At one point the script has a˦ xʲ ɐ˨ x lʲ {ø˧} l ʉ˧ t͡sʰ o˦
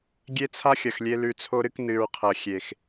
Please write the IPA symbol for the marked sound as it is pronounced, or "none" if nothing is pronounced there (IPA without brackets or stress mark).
e˧